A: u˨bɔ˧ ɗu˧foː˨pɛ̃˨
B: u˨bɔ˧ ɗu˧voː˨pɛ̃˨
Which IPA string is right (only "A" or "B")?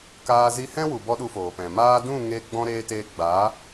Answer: A